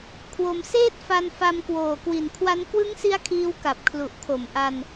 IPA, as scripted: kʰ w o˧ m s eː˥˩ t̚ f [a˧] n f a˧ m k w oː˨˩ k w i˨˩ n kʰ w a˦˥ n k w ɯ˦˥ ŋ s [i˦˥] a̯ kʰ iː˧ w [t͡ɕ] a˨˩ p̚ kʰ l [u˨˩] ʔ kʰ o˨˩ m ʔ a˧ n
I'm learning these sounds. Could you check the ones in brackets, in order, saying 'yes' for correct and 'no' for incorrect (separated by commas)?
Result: yes, yes, no, yes